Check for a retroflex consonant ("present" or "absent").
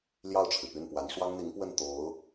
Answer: present